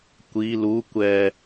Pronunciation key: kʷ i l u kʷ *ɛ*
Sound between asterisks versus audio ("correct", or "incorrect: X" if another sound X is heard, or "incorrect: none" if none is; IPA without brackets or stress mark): correct